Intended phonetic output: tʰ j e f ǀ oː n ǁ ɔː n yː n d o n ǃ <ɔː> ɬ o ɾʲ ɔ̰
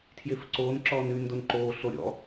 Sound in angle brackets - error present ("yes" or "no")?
yes